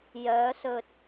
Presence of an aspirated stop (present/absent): absent